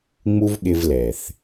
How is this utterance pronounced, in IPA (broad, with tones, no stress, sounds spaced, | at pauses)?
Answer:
ŋ͡m u˦ v ɠ ɪ˧ v l ɛ˨ θ